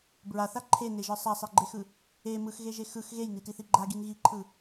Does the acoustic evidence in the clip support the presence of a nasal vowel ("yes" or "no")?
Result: no